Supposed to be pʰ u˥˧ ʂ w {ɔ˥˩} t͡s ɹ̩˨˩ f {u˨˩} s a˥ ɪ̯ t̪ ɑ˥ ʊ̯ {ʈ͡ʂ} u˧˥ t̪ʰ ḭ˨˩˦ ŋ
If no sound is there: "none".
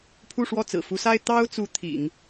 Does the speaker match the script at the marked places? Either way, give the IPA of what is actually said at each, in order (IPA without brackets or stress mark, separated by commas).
ɔ˥˩, u˧˥, t͡s